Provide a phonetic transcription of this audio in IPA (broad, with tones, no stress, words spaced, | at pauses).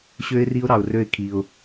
ɕø˦ɪ̯ri˦ʊ̯ɾɑ˧ʊ̯rø˦˨ɪ̯ kʰi˧ʊ̯